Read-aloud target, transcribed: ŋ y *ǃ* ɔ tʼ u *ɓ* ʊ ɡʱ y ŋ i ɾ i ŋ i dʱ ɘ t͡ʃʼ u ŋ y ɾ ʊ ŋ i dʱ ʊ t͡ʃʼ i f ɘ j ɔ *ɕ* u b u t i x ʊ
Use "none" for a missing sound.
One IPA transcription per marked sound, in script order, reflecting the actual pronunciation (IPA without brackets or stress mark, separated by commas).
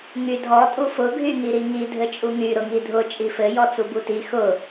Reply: dʱ, f, t͡s